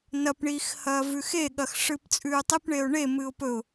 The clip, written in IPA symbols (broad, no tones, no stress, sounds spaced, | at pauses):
n ɐ p ɳ iː x h ɐː v ʉ x e ɠ ɐ x ʂ ɨː p t͡sʼ ʉː tˤ i p ɳ e ʊ̯ ɳ e m ɨ ʊ̯ p ɵ ʊ̯